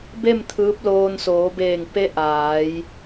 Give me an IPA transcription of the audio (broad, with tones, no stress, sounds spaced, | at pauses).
b e˥˨ m t̪ʰ ɯː˧˥ p̚ l oː˧ n s oː˩˧ b eː˧˩ ŋ p e˧˥ ʔ aː˩˧ j